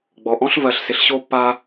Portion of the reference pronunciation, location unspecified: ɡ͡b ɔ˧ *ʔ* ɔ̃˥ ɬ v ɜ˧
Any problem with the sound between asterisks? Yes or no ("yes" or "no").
no